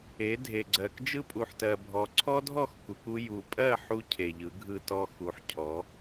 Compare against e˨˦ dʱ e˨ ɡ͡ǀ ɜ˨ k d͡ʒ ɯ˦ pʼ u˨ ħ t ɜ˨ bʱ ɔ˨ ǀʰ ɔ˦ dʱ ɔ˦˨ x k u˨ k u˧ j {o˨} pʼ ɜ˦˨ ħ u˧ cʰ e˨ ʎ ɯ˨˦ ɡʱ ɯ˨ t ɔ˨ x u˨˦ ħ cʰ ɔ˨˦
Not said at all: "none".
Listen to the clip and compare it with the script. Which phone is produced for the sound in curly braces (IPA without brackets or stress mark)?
u˨